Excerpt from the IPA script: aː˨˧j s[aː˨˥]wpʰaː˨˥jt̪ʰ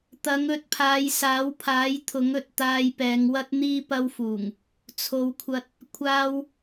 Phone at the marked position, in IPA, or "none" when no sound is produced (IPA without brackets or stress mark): aː˨˥